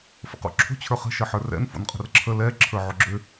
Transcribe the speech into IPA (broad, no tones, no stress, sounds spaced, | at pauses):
f ə̰ q o̰ ǁʰ o̤ t͡ɕʰ ə˞ χ ə̤ ʃ ə ħ ə˞ r ɛ̰ n f o̰ n qʼ ə̤ r ǁʰ ə l ɛ ǁʰ ə˞ ʕ ʊ ɡ͡ǁ ʏ